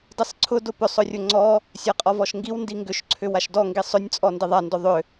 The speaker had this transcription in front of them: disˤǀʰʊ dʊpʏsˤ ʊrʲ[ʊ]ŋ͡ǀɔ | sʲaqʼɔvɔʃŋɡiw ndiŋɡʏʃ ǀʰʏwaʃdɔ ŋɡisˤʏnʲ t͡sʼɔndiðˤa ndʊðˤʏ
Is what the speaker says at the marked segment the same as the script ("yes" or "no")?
yes